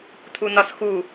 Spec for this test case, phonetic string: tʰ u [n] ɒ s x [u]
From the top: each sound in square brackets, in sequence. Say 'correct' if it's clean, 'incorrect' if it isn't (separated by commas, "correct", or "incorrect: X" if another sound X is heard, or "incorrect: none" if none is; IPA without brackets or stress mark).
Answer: correct, correct